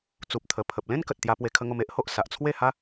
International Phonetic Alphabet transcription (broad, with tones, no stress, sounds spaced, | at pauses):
t͡s u˨ p̚ t̪ʰ ə˨˩ pʰ ə˨ p̚ l ẽ˦ n k ə˨ t̚ t̪ j a˧ p w e˧ kʰ ə˧ ŋ o˧ m e˦ ʔ h o˨ ʔ s a˨ ʔ t͡sʰ w e˥˧ h a˦